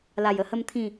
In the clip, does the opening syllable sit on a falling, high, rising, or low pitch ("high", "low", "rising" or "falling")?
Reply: low